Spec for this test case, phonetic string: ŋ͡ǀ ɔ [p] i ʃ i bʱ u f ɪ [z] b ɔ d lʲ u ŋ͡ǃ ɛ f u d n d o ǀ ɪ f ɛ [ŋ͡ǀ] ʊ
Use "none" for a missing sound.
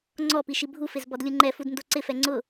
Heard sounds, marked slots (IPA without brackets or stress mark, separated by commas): p, z, ŋ͡ǀ